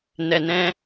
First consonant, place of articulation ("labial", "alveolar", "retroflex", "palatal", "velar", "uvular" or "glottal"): alveolar